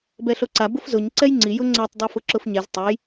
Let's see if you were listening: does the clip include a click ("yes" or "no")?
yes